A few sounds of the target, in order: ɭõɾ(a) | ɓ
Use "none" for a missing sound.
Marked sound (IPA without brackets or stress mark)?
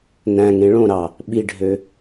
ɑ